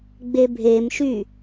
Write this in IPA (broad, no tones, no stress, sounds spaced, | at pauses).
ɡ͡b e bʱ e m ʃ y